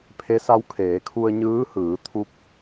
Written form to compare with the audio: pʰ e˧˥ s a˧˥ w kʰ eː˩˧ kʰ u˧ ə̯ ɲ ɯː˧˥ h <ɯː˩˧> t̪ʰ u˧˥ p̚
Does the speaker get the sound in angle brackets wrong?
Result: no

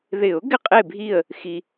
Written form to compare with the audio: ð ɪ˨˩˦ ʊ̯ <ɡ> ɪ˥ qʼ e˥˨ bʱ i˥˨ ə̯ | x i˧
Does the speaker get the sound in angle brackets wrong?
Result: no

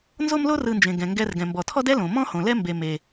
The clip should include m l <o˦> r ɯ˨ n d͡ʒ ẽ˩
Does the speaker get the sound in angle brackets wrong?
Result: no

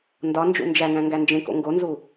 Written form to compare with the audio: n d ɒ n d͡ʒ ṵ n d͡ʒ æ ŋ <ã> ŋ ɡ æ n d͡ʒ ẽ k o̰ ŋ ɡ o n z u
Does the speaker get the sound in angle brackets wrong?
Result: yes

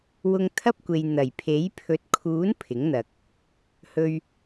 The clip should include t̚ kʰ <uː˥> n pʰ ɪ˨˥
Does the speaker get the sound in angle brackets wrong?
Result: yes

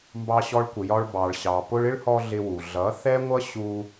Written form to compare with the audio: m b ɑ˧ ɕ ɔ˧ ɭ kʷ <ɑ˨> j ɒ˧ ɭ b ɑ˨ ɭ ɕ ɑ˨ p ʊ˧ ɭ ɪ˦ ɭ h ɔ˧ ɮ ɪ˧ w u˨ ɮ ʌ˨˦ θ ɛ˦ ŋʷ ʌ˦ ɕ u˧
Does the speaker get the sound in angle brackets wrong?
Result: yes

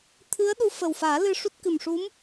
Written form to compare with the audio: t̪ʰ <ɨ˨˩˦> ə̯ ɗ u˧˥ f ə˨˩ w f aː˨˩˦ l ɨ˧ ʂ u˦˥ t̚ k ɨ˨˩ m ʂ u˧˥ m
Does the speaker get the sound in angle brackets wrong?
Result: yes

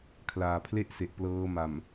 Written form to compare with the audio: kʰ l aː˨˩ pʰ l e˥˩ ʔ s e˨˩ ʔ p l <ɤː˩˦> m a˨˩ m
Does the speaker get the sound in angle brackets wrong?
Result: yes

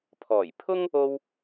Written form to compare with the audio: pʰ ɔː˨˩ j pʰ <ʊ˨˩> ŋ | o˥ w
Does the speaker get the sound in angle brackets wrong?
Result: yes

